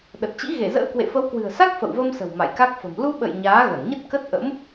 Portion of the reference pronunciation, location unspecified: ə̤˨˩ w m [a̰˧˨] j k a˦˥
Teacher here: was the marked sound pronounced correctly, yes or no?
yes